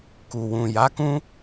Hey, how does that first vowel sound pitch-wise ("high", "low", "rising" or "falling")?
low